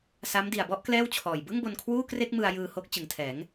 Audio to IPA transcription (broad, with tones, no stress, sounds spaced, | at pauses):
s a˦˥ m d i˨˩ a̯ b ɔ˥˩ ʔ k l ɛː˥˩ w t͡ɕʰ ɔː˨˩ j b ɯ˥˩ ŋ b o˧ n kʰ w uː˥˩ k r e˥˩ k̚ m ɯ˧ a̯ j ɯː˧ h o˦˥ k̚ t͡ɕ ɯ˩˦ ŋ tʰ ɛː˩˦ ŋ